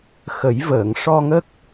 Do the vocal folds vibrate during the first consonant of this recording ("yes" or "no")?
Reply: no